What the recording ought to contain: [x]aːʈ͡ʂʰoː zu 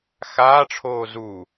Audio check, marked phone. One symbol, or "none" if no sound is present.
x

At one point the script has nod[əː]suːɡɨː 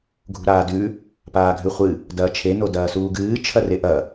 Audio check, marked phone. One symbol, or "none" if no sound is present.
ɐː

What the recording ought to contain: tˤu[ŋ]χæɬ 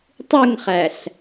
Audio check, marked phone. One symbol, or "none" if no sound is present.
ŋ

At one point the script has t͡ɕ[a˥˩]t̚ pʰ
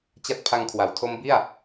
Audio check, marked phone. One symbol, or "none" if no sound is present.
a˥˩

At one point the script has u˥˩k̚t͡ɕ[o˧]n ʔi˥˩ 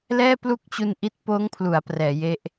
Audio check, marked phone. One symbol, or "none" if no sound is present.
u˧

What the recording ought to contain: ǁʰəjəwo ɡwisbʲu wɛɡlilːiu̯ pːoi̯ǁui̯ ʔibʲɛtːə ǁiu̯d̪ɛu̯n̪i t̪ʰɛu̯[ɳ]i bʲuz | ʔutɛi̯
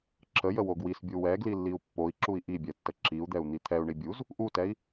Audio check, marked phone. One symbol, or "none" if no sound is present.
ɳ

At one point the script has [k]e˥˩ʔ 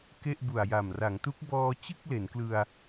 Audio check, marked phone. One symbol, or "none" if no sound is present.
k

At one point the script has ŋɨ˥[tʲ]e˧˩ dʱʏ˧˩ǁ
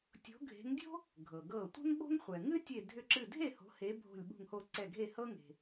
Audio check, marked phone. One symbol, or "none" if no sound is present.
tʲ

